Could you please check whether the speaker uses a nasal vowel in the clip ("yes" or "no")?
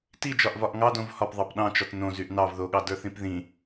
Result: yes